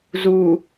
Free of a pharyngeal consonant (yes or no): yes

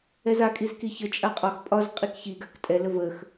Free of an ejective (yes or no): no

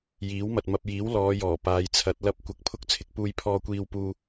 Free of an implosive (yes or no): yes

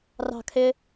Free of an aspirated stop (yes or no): no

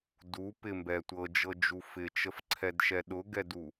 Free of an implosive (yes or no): no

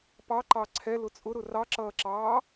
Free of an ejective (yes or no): no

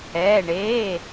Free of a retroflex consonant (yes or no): no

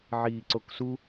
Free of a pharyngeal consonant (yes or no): no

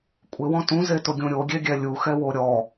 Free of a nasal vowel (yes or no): no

